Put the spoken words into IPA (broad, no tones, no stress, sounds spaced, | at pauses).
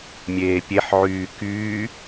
mʲ eː pʲ e ħ ʕ yː k yː